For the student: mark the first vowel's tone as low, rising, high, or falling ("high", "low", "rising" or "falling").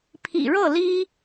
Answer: low